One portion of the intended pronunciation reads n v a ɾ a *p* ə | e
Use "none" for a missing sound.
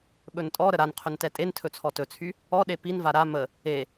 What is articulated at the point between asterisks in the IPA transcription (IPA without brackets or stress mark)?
m